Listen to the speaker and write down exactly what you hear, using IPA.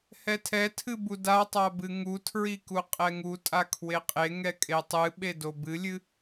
hɛtʰɛtʰɨ budatˤa bɨŋutʰɹi kuqʼɛŋutʼa kʰweqʼeŋɛ kʼetˤɨɓe dobɨlʲɨ

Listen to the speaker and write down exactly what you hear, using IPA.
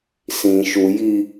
sĩ ʃuji

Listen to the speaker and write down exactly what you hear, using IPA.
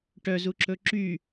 ʈœzuǁɵ ǁy

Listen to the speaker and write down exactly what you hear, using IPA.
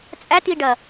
t͡sʼætiɖɐ

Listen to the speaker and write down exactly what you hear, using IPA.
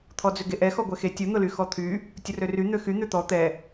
t̪ʰɔd͡zʏɡeʔɛ xɔɡʷɛxe tʲʊ n̪ʊlyxɔt̪ʰy | tʲʊrøry n̪øxy n̪ʏt̪ɔ t̪ɛ

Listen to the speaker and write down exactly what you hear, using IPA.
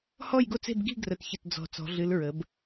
hɔ˥˨jɡo˥˨t͡se̤˥˨b ɡi̤˥˨ɡrə˨˩tçə˨˩t d͡zɔ̤˨˩ t͡sɔ̤˩˧ɮɨ˩˧l ɹə˩˧b

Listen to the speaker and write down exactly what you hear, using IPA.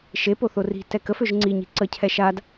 ʃe poθori̤ tɛkə føʒŋ͡ǀi ɲi̤ǀə cʰɛʃad

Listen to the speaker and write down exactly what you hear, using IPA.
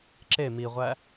ǁe miʁʷæ

